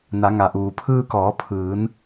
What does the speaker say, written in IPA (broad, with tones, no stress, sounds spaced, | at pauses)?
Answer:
n a˩˧ ŋ a˩ ʔ uː˩ pʰ ɯː˧ k ɔː˩˧ pʰ ɯː˩˧ n